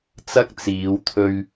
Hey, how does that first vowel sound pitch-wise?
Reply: high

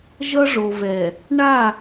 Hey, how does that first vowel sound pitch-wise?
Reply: high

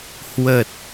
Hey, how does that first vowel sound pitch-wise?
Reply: low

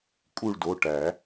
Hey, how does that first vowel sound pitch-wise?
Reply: falling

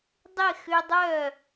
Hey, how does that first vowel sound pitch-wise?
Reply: falling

